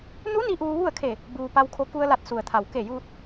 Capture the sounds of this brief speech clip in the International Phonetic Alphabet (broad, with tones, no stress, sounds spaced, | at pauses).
n u˧˥ n i˧ ʔ uː˧ ʋ u˥˨ ə̯ kʰ e˧˩ | b uː˩ p a˧ w kʰ o˧ k u˧ ə̯ l a˧˩ t̚ s u˩ ə̯ t̪ʰ a˩ w k e˧˩ j uː˧ t̚